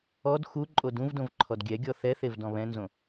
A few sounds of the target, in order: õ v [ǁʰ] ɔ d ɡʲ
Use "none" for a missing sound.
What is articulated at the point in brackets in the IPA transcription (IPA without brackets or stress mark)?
ǃʰ